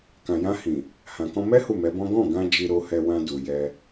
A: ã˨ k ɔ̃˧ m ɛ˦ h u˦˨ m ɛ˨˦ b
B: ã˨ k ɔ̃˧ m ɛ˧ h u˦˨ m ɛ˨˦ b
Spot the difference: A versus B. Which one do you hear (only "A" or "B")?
A